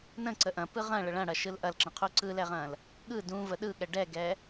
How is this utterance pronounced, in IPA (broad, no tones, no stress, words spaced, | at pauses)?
nə̃ ǀəʔɐ̃ pɯʁɐ̃ ɭəɭɐ̃ɽɐ ʃɯlʔɐlǁə̃qʰu ǀɯlɛʁɐ̃l | ɠɯ dũ vəɗɯɠɛ ɖɛɡɛ